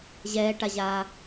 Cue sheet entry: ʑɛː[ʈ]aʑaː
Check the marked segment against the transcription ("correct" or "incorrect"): correct